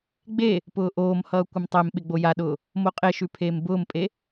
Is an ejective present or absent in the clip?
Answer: present